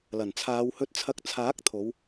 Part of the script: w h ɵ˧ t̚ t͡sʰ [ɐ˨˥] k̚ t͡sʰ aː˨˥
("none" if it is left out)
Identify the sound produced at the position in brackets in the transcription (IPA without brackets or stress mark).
ɐ˧